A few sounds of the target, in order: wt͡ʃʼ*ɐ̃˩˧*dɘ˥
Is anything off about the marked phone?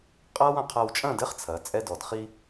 yes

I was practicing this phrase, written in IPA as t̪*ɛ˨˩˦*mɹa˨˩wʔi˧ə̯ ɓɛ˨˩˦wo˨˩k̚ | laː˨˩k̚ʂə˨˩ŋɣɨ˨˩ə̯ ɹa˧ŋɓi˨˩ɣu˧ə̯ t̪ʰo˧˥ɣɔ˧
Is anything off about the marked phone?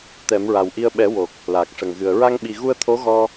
no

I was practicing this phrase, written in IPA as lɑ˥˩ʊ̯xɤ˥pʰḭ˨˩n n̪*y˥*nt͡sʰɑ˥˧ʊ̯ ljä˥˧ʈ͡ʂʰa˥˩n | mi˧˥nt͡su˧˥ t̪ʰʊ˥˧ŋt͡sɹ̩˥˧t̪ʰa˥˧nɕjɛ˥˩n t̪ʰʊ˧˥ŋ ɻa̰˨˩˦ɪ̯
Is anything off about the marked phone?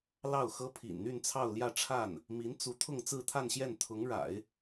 yes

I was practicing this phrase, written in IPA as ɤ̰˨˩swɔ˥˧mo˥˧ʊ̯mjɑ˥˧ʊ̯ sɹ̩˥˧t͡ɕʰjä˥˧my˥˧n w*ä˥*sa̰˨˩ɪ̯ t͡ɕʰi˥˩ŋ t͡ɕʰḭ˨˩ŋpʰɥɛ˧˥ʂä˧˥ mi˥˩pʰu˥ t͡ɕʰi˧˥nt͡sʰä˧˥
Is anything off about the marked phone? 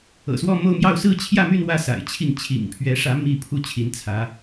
yes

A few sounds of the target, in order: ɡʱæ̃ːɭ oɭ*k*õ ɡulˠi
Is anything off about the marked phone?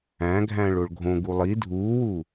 yes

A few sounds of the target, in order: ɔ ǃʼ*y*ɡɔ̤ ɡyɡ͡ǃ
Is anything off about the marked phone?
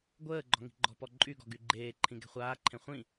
no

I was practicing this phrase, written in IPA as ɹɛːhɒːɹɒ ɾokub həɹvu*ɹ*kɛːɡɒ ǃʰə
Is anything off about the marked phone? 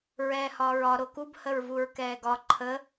no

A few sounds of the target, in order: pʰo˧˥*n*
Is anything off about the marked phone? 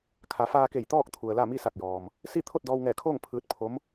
yes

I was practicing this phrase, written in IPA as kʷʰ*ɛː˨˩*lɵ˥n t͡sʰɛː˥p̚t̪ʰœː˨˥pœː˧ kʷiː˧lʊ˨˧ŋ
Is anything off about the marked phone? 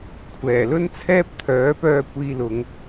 no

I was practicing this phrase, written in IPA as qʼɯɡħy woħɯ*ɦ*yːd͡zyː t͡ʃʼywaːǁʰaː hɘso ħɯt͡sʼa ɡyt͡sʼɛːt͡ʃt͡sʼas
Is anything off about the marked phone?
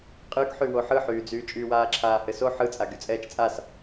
yes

